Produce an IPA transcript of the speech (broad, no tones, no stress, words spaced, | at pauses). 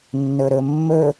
nːɵɾɵmːɵ